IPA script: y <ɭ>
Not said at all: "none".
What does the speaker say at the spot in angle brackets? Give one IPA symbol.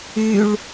ɭ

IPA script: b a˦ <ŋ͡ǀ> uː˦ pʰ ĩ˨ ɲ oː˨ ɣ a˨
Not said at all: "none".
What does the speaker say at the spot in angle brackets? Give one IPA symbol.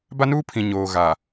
n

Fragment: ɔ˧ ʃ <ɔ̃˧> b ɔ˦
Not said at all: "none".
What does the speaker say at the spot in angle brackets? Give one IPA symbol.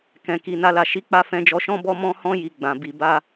ɔ̃˦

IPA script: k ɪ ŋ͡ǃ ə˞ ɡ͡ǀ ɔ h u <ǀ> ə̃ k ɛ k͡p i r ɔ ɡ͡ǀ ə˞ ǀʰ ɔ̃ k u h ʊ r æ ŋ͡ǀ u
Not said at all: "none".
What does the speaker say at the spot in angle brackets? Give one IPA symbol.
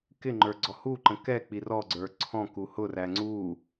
ǃ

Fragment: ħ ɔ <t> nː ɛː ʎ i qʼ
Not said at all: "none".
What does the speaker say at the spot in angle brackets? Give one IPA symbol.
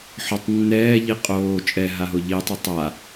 tˤ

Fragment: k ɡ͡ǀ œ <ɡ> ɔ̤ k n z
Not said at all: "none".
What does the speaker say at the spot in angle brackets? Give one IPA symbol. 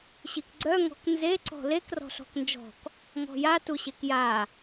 ŋ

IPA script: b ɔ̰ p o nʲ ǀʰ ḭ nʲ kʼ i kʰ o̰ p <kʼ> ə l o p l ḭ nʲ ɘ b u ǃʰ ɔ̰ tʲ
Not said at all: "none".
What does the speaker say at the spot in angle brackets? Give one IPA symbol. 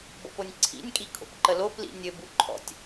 ǃ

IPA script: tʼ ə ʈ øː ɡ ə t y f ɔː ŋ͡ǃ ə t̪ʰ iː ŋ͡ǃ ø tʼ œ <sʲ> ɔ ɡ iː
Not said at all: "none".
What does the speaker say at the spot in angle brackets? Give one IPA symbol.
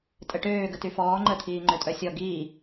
sʲ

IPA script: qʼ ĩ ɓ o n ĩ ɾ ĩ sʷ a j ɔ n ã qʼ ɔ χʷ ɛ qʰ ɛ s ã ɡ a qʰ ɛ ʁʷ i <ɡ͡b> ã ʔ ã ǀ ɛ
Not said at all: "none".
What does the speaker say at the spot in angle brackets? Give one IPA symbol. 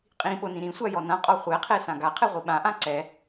ɓ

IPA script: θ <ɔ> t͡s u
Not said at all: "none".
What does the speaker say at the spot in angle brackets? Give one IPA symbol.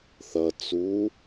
ʌ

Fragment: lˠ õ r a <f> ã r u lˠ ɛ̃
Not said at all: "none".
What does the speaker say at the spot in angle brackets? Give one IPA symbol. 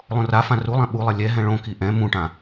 f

